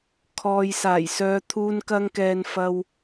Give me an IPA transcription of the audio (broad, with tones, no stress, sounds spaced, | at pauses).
kʰ ɔː˨ j s aː˨˩ j s œː˨˧ t̪ʰ uː˧ n k ɐ˧ ŋ k ɛː˨ n f ɐ˧ w